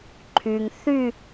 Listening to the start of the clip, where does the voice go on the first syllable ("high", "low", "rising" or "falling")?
low